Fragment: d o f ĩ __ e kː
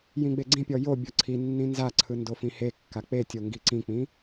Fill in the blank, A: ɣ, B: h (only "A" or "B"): B